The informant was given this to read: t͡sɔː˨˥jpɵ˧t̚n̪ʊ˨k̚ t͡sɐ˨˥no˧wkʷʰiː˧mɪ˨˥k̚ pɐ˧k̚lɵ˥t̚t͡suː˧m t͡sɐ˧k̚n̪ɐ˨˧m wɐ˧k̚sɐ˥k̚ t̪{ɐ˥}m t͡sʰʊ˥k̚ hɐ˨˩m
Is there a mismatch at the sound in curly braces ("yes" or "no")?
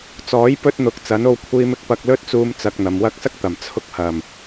yes